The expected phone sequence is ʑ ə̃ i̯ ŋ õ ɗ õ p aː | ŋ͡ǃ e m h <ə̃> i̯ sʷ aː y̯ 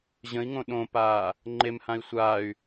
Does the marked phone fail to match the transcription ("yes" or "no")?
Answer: yes